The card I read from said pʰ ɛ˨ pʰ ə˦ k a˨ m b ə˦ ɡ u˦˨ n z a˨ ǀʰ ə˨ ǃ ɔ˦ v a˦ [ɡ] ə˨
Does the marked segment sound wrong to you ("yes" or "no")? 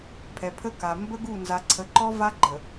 yes